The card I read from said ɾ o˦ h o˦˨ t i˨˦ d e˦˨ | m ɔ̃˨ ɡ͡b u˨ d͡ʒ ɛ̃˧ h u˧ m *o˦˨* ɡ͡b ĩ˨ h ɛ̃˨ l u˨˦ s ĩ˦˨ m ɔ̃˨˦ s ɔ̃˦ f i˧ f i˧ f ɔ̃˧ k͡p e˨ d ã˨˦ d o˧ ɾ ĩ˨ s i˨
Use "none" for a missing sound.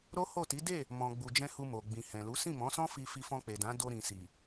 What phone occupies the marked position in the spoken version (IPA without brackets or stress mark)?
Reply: o˨